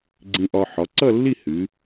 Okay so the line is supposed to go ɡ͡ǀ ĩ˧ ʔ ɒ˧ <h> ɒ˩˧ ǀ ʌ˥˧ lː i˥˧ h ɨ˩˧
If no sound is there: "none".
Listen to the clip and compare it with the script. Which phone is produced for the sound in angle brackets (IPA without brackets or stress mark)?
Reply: ħ